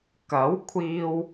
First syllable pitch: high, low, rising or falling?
rising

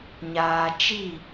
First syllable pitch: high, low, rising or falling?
low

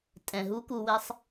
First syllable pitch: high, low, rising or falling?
low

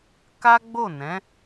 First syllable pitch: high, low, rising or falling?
high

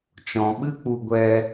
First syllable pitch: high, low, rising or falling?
low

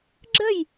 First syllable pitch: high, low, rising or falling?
falling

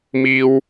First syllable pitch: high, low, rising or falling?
high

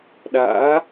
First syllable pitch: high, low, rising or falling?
rising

